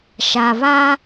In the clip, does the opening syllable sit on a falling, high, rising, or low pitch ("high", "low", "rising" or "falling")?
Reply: low